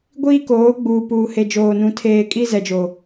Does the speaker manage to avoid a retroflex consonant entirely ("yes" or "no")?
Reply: yes